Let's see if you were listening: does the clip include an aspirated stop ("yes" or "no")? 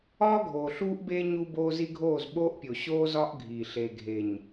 no